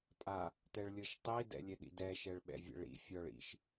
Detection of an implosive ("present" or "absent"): present